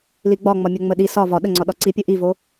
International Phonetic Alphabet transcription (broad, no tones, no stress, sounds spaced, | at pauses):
l i ɡ͡b ɒ ŋ͡m ɒ mʲ ɒ ŋ͡m ə ɗ i s ɒ v ɒ ɗ ə ŋ͡ǀ ɒ ɗ ɒ ǀ i pʲ o ʔ i v o